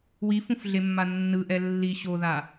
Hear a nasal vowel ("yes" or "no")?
yes